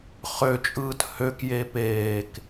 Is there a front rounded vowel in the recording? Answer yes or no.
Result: yes